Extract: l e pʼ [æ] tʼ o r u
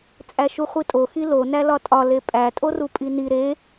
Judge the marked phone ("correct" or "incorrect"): correct